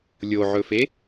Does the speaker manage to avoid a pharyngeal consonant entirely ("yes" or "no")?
no